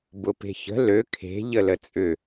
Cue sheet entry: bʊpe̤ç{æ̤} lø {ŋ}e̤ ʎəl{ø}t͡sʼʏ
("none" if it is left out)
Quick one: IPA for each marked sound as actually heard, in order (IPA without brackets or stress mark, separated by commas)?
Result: ə̤, kʰ, ə